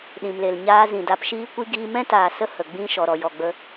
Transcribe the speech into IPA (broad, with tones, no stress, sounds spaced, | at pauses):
ɗ ĩ˨ m l e˨ l ɲ aː˧ z ĩ˨ d a˧ p ʃ iː˦ kʷ i˦ ɡ iː˧ m ɛ̃˦ t aː˨ s ə˦ h ə˨ ɡ͡b ĩ˦ ʃ ɔ˨ ɾ ɔ˨ j ɔ˨ ɡ͡b ə˧